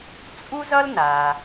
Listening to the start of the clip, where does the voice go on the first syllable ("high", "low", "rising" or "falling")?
high